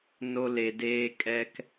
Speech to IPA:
n o˧ l e˨ d eː˧ kʼ ɛ˧ k

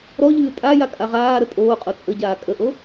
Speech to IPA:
ɾ ɔ ʎ ɨː tʼ a j a kʼ a ʁ aː ɾ ə tʼ oː qʼ o t͡sʼ ə ɟ aː kʼ ə ʔ o

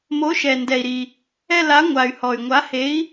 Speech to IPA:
m o˨˥ ʃ ɛ˩ n d ɛ˩ i̯ ɾ i˩ | ɛ˦˨ l a˨˥ ŋʷ a˩ y̯ h ɔ˩ y̯ ŋʷ a˨˥ h e˨˥ i̯

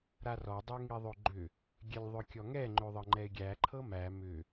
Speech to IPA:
ɾ a r ɔ dˤ ø ŋ i ðˤ ø ɡ͡ǃ ʏ | ɡʲ ɛ lʲ ðˤ ʏ kʲ ɔ ŋ ɛ ŋ͡ǃ ø ðˤ ɤ ŋ͡ǃ ɛ ɪ̯ ɡʲ æ ǃʰ ɤ m æ m ʏ

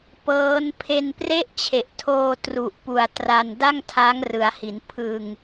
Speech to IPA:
p ɤː˦˥ n pʰ e˧ n p r e˥˩ ʔ t͡ɕʰ e˨˩ ʔ tʰ oː˧ t r u˨˩ ʔ p u˨˩ a̯ t r a˧ n d a˥˩ ŋ tʰ a˦˥ ŋ r ɯ˩˦ a̯ h i˩˦ n pʰ ɯ˧ ŋ

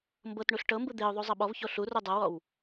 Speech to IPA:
m b ɤ t ɳ u ɬ ʈ ɤ m b ɯ d̪ e ʊ̯ ðˤ u zˤ ɤ ɓ ɔ v ç o ɬ u r u dˤ ɤ w ɔ w

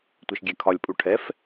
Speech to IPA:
tʷ ɛ ʃ ɡʲ ɛ kʰ ɒ lʲ pʼ u ʈʰ ɛ f

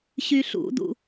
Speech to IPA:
ɕ y ɬ ṵ d ṵ

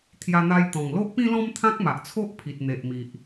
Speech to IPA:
t̪ʰ j a˧ n̪ a˧ j t̪ ɔ̃˨˩ ŋ l o˦ ʔ p ĩ˦ l ɔ̃˦ m t̪ʰ ã˦ k̚ m a˨ ʔ t͡sʰ o˦ ʔ pʰ i˨ t̚ n̪ e˨ ʔ m i˨ ʔ

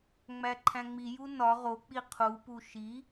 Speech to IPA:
ŋ͡m æ ǃʰ æ̃ ŋ͡m i j u n ɒ ʁ o k͡p i qʰ u p u ʃ i

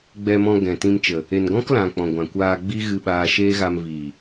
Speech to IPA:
ɡ͡b ɛ˧ m ɔ̃˧ ɡ ɛ̃˨ t ĩ˧ m t͡ʃ ə˨ | e˨ n ɡ ɔ̃˦ k l ã˨ k͡p ɔ̃˨ ɡʷ ã˨ kʷ aː˧ ɡ͡b i˦ ɣ ɨ˧ ɓ aː˧ ʃ eː˦ ɣ a˧ m v i˨

